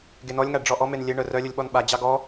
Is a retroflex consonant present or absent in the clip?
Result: present